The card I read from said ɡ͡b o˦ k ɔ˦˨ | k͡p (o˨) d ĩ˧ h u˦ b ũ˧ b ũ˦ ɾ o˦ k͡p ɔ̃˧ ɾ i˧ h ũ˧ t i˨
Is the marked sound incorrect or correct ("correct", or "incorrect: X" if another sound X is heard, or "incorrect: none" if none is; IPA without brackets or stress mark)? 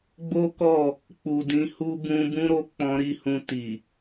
incorrect: u˨